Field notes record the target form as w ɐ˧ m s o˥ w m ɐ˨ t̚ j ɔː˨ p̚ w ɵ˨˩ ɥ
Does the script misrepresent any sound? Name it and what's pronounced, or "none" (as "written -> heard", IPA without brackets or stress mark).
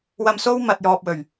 none